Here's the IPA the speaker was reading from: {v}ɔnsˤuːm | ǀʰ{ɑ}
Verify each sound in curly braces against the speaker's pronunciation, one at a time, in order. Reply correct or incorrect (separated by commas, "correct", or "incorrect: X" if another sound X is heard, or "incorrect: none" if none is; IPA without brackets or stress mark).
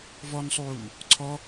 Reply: correct, incorrect: ɔ